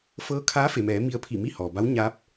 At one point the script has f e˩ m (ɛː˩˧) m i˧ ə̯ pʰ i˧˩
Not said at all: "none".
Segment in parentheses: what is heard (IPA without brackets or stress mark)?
ɛː˩˧